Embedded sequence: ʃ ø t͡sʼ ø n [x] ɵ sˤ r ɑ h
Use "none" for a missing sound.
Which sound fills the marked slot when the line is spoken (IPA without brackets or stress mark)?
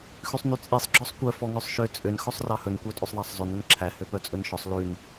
x